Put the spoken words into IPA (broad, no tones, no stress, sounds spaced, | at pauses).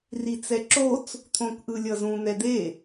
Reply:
r i t͡s ɛ ǁ o t͡s | t̪ʰ õ k ʔ ɯ lʲ ʌ z ũ n̪ ɛ d̪ e